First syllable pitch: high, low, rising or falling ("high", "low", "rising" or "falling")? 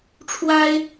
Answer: high